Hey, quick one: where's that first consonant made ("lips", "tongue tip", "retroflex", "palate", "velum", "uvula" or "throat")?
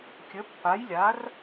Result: velum